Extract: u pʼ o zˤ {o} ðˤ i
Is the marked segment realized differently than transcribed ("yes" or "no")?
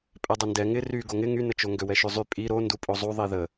yes